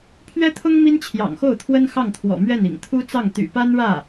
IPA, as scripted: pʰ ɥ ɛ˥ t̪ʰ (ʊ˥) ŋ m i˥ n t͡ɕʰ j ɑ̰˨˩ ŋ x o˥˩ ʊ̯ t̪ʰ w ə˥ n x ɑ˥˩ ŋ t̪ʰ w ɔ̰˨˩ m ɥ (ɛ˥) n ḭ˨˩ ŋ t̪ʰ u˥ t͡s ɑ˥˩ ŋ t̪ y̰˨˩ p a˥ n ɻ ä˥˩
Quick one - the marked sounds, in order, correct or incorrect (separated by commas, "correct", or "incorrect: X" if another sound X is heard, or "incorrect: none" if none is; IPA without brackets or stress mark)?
correct, incorrect: ɛ˥˩